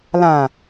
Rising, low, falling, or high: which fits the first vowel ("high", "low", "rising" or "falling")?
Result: low